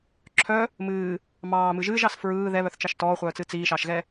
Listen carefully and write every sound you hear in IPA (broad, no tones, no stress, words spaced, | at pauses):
ǁʰœ | mɨː | mɑːmɨ ʒɨːʒɑs fɹɯː ðɛβœθt͡ʃɑʃ tɔːχʷœːt͡sɨ t͡siːʃɑʃɣɛ